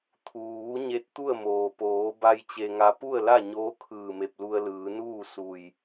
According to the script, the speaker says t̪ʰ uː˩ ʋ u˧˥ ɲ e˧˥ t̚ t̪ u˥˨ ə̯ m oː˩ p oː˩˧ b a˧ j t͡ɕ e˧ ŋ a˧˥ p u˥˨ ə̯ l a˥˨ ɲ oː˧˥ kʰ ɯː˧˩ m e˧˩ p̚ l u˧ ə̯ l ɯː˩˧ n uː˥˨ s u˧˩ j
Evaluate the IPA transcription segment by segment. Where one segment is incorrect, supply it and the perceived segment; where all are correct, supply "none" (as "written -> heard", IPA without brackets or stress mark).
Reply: none